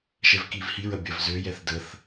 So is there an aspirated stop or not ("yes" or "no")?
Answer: no